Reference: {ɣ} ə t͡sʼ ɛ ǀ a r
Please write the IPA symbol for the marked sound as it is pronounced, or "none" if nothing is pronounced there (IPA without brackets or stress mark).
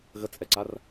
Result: ɣ